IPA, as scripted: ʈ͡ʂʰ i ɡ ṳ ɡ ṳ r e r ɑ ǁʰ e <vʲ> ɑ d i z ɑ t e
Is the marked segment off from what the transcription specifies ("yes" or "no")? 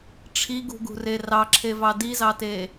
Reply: yes